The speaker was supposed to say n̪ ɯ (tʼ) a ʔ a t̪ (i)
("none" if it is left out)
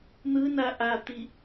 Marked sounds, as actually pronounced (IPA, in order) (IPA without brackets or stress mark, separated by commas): n, i